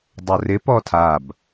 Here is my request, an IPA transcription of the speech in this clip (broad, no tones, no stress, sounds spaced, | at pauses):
dˤ o r ɪ p ɔ tʰ a b